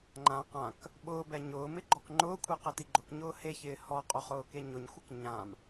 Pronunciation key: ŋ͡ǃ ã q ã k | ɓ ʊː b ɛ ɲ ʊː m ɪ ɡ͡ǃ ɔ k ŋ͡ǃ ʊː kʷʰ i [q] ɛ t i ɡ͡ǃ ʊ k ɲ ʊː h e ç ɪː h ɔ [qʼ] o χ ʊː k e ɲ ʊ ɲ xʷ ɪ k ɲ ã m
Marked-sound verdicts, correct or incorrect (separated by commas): correct, correct